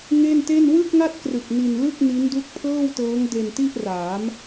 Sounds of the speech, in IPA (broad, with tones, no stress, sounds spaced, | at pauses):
ŋ e˥˩ n t e˥˩ n w ɯ˥˩ k̚ ŋ a˥˩ t̚ k r ɯ˨˩ k̚ n i˧ n l ɯ˥˩ k̚ n i˦˥ n d u˦˥ k̚ pʰ ɤː˥˩ w t ɤː˦˥ ŋ d e˧ n t i˥˩ ʔ r aː˩˦ m